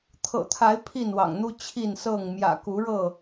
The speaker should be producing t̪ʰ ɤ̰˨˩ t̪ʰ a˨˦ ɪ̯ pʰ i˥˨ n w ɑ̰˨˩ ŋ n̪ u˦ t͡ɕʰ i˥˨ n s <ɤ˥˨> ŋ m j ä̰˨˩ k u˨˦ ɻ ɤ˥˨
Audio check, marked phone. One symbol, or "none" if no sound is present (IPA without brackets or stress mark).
ɤ˥˨